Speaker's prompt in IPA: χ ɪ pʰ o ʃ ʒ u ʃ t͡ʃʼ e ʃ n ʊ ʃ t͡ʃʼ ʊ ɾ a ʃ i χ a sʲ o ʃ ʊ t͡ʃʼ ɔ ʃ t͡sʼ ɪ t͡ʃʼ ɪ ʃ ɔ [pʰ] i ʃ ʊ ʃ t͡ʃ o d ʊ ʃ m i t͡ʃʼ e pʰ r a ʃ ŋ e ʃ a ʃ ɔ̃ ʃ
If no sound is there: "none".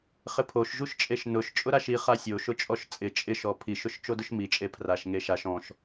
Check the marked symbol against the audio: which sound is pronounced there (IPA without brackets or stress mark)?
pʰ